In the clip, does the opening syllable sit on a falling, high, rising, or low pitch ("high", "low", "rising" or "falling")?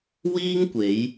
high